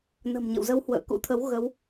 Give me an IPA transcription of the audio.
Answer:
n ə̤˨˩ m ɲ ə̰˧˨ w z ə˧ w h w ə̰ː˧˨ k ṵ˧˥ t̪ʰ ə˨˦ w ɣ ə˨˦ w

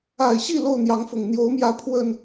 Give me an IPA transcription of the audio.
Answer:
a˨˩ ɪ̯ ɕ i˥˨ l o˥˨ ʊ̯ n̪ j ɑ˨˦ ŋ f ʊ˨˩ ŋ n̪ j o˨˦ ʊ̯ m j ä˨˦ pʰ w ə˨˩ n

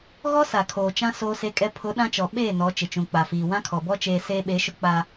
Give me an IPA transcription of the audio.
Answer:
ɣ ɔ˦ s a˨ kʰ oː˨ t͡ʃ ã˦ s oː˦ s e˦ kʼ ɛ˦ pʰ ʊ˨˦ ɗ ã˦ t͡ʃ ɔ˨ ɓ eː˦˨ n ɔ˨˦ t͡ʃ ɪ˨ t͡ʃ ũ˨ k͡p a˨ f iː˨ w ã˦ kʰ ɔ˨ b ɔ˦ t͡ʃ eː˨ s eː˦ ɓ e˨˦ ʃ ʊ˦ k͡p aː˦

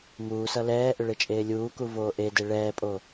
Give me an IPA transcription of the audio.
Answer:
m uː s ʌ l ɛː ʔ ʏ ɭ e t͡ʃʼ eː lʲ uː k u v oː ʔ e d e ɭ ɛː pʼ o

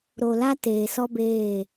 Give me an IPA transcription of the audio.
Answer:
ɾ o˨ l a˦ t eː˨ s ɔ˦ b eː˦˨

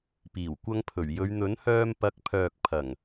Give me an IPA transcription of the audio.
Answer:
p iː˨˩ w kʷ ɐ˧ ŋ pʰ ɵ˨˩ ɥ j ɵ˨˧ ɥ n̪ ɵ˨˥ n h œː˧ m p ɐ˨˥ k̚ pʰ œː˨ k̚ pʰ ɐ˨˩ ŋ

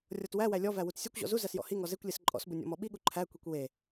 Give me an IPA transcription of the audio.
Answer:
rʲ ɔ t w æ w æ lʲ ɔ v æ w u t sʲ ɔ kʷ ʑ ɔ̰ z u z æ s j ɔ̰ h i ŋ ɔ z e kʷ lʲ e s ǃʼ ɔ̰ s b u nʲ ɔ̰ m ɔ ɓ i ɠ u ǃʰ æ kʷ i kʷ w e

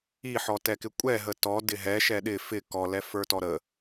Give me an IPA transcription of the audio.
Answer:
i ħ ɔ t ɛ k ɪ kʷʼ ɛ ɦ ə t ɔ d ɪ ɦ ɛ ʃ ɛ ɗ ɪ f ɪ k ɔ l ɛ f ə˞ t ɔ ɾ ə

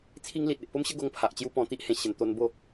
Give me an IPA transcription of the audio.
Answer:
t͡sʰ i˦ ŋ l i˨ t̚ e˨ ʔ p o˦ m ɕ ə˦ ɡ o˧ ŋ pʰ a˨ ʔ t͡ɕ j u˦ p ɔ̃˧ t̪ i˦ ʔ h ẽ˨˩ ɕ ə˨˩ n t̪ o˧ n b o˥˧

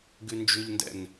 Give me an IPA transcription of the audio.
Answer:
ɡ ʉ n d͡ʒ ʉ ʎ n d ɛ̰ n

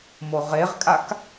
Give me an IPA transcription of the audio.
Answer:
m o ʁ e ʁ kʼ a k

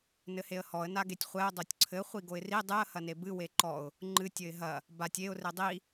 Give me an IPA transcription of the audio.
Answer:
n ɘ h e ə̯ h ɔ ə̯ n a ɡ e tʲ χʷ ɛ ʊ̯ dˤ o tʲ ǀʰ ɘ χʷ i ɡ o ɪ̯ r i dˤ ɨ ə̯ h ɐ n e b ɨ w e ǃ ɔ ʊ̯ | ŋ͡ǃ ɨ tʲ ɘ ɪ̯ ɦ ɐ | b a tʲ e ʊ̯ r e dˤ i

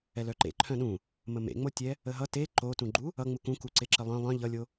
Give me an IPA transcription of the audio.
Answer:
ɛ l œ ǃ ḛ ǃʰ œ̃ ɗ ũ | m ə m ḛ ŋ͡m o tʲ ɛ | ə ɦ ʌ t e ǃ o t ũ ɡ͡ǃ u | ʌ ŋ͡m u k ũ k u ǀ e ǁ ə lˠ œ̃ lˠ œ̃ ʎ ʌ lʲ o

